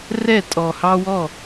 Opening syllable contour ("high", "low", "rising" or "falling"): falling